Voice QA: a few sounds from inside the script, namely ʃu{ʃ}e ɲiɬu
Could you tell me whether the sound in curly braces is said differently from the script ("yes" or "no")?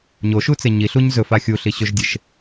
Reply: yes